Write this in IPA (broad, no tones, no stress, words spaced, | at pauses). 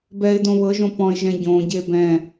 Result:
bɛɪ̯dõ βɤʒõ pɔ̃ɪ̯ʒɛ̃ ɟõɟe bɛ̃